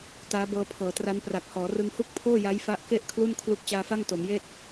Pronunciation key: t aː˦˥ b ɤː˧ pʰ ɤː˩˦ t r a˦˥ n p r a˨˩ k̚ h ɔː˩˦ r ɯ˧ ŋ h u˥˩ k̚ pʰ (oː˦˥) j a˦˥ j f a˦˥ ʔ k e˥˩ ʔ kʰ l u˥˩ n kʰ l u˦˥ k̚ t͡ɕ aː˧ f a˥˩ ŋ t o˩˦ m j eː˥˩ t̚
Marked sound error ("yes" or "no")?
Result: yes